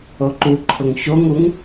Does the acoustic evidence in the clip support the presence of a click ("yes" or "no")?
yes